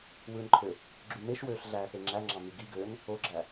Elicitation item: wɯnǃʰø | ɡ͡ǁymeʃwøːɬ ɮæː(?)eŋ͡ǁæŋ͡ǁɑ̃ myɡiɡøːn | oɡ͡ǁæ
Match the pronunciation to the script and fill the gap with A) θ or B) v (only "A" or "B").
A